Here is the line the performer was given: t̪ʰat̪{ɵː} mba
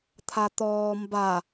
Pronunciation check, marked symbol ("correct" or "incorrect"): incorrect